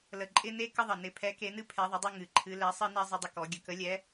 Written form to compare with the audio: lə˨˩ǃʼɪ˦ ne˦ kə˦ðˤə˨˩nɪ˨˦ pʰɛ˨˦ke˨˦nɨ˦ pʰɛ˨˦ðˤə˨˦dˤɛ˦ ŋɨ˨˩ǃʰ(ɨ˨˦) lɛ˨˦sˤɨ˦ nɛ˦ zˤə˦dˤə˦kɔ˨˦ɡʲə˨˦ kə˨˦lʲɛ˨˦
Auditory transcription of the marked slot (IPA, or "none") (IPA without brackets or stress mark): ɨ˨˦